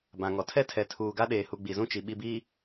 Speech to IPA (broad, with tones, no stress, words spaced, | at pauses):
bã˨ŋɔ˨ tʰɛ˦tʰɛ˨ tʰuː˨ɡa˦ɗeː˨hu˨ ɡ͡bi˨zũ˦t͡ʃi˨ ɓi˨biː˨